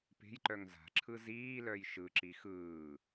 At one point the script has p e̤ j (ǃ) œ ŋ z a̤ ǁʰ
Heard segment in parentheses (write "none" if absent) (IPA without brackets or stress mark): ǃ